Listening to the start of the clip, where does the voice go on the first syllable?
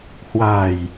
low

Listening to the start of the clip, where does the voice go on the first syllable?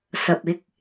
low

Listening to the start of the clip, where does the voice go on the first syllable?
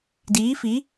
rising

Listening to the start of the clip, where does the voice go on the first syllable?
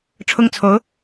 high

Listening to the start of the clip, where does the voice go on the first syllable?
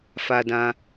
high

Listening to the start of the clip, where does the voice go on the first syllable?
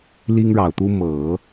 high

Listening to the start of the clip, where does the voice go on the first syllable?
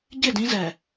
falling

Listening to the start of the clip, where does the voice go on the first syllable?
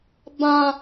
high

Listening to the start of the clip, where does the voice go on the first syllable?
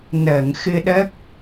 low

